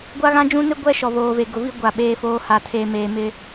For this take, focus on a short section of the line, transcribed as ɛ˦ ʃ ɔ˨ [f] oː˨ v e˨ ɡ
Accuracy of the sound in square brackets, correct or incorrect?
incorrect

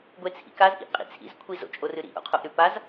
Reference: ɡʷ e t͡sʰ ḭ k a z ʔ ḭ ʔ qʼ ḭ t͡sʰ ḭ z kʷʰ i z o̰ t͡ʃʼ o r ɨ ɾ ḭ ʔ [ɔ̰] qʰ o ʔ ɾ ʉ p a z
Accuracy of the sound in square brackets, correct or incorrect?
incorrect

